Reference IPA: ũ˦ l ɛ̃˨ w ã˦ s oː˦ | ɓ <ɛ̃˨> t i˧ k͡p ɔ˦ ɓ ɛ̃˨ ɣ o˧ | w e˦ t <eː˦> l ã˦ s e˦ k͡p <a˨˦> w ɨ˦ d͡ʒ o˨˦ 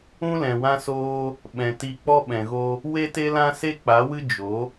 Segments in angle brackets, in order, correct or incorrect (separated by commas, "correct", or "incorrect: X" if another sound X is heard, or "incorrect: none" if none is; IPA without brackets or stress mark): correct, incorrect: e˦, correct